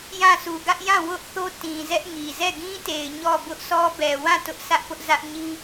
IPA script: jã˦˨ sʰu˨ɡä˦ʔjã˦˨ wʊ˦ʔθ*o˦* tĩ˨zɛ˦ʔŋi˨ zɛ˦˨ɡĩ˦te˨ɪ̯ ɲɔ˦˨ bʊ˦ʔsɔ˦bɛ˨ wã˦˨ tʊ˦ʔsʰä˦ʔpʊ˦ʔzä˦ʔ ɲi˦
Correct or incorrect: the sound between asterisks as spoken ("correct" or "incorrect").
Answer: correct